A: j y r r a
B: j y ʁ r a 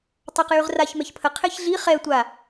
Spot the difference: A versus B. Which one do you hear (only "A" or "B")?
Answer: B